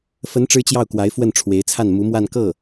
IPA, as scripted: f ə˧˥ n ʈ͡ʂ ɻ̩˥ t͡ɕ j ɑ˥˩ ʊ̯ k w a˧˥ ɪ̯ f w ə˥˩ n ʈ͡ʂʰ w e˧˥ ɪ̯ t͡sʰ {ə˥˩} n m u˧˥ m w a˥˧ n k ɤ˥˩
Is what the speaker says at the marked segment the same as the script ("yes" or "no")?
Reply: no